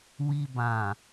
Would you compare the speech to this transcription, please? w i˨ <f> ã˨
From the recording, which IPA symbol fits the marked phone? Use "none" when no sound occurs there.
b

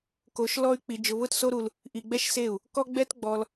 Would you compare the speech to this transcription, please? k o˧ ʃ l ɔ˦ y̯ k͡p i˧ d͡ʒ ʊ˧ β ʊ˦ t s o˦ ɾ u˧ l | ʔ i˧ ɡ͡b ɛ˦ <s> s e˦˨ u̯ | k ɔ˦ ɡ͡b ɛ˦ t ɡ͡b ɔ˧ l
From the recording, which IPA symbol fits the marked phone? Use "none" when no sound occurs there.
ʃ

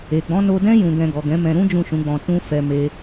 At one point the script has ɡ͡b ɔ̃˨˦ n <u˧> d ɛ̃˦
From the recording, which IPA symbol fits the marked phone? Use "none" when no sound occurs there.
o˧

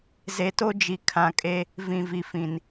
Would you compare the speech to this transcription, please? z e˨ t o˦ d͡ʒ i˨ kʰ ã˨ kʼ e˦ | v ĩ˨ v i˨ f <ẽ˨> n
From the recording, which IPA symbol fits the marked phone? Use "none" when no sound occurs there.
ĩ˨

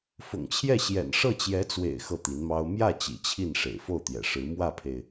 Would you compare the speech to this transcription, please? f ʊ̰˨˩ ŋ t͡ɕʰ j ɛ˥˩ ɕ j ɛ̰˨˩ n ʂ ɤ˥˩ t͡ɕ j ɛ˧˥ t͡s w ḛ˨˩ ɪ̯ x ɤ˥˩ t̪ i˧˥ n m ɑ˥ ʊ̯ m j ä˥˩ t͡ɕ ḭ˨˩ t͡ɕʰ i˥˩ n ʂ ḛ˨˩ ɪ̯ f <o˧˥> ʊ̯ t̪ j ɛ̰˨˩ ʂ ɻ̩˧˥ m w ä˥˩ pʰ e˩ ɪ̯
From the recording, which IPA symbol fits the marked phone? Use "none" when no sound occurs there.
o˥˩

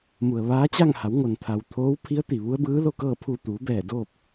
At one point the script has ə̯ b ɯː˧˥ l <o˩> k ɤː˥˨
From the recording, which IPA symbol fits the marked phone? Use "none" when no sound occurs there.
o˥˨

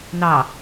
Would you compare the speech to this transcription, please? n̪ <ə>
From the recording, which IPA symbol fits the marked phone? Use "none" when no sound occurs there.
ɑ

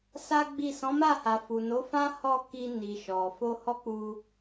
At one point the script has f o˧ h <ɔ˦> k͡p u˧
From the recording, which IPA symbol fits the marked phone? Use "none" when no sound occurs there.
ɔ˦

